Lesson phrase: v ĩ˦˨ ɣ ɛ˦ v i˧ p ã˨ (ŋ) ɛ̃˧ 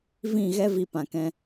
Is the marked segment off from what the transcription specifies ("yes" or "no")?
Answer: yes